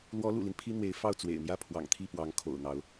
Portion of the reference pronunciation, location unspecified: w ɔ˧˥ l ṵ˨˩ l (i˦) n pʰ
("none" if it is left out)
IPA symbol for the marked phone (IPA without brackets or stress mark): i˦